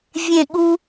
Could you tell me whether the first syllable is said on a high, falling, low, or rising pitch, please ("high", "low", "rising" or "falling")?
falling